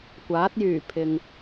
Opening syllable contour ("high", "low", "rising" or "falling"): rising